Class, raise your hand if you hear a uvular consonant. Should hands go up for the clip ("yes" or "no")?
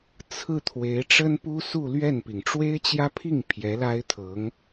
no